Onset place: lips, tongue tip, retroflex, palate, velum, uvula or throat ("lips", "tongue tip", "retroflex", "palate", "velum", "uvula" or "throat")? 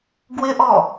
velum